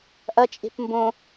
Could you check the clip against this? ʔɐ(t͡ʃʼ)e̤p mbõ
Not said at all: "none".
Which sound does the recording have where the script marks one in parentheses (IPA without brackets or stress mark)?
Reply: t͡ʃʼ